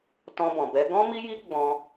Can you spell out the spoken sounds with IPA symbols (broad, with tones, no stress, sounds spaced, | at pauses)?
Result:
t ɔ̃˧ b ɔ̃˨ b ɛ˨˦ ɡ ɔ̃˦ m i˦ j i˦ ɡ͡b ɔ̃˧